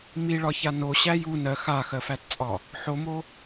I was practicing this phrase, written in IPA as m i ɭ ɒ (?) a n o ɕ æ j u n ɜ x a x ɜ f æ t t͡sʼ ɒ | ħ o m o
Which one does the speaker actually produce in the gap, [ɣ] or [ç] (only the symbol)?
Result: ç